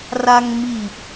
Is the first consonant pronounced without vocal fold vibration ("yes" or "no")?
no